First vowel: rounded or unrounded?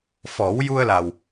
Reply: rounded